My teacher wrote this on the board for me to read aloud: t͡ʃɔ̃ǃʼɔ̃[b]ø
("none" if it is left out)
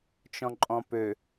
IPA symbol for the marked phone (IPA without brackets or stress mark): p